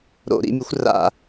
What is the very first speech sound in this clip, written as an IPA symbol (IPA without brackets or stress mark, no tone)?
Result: ɾ